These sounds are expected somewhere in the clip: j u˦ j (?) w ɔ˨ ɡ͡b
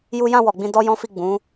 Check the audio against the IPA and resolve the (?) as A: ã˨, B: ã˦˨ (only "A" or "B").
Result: B